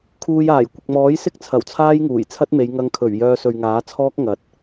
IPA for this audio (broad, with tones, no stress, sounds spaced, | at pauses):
kʰ uː˧ j aː˨˩ j kʷ ɪ˨ k̚ m ɔː˨˥ j s ɪ˥ k̚ t͡sʰ ɐ˨˩ w t͡sʰ aː˥ j ŋ uː˨˩ j t͡sʰ ɐ˥ t̚ m e˨˧ j ŋ ɐ˧ ŋ kʰ ɵ˨˩ ɥ j œː˧ s ɵ˨ ɥ ŋ aː˨˥ t͡sʰ ɔː˥ k̚ ŋ ɐ˨˥ t̚